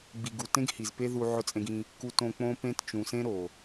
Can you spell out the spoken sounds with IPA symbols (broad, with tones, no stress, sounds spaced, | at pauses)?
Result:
ɡ͡b i˨ ɡ u˨ t ẽ˦ ɡ h i˨ z p e˦ ð u˧ ʕ ʊ˧ t͡sʼ ẽ˧ ɡ ĩ˧ | k u˧ t õ˧ k͡p õ˦ p ẽ˦ t t͡ʃ ũ˨ s ẽ˦ ɾ o˨